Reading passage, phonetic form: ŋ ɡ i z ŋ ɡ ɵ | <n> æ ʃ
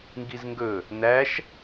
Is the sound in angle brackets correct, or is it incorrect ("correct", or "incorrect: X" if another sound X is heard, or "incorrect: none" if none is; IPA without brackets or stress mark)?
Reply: correct